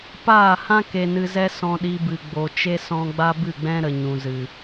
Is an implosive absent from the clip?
no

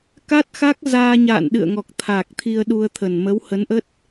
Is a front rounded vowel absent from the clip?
yes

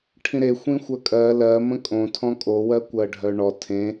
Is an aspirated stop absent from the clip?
no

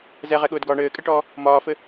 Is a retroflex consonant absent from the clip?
no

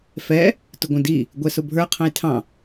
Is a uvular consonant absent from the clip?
no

